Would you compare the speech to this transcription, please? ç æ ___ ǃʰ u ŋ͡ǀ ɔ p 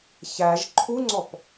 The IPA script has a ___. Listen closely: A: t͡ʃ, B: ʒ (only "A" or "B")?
B